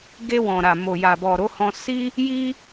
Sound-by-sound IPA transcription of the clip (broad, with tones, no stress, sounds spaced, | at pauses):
ɡ e˧ w ɔ̃˨ ɾ a˨ m o˨ j a˨ b ɔ˨ ɾ o˨˦ h ɔ̃˧ s i˦ | j i˦